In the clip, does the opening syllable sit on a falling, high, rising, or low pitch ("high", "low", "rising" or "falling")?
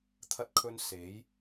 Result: high